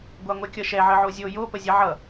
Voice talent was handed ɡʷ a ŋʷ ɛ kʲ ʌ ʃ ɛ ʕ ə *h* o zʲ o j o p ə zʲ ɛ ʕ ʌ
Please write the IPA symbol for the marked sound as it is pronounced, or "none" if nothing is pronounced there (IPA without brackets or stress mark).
ʕ